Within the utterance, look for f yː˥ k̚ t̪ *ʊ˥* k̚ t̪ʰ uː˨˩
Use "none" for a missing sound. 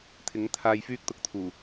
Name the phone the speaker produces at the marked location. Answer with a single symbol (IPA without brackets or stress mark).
ʊ˧